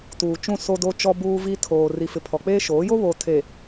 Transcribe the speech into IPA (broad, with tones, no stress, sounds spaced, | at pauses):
t uː˨ t͡ʃ ũ˦˨ s o˦ d o˦ t͡ʃ ɔ˦ b uː˦ v i˦ tʰ oː˨ r i˨ f ɪ˨ pʰ ɔ˨ k͡p eː˦ ʃ oː˨˦ j o˦ β oː˨ tʰ e˨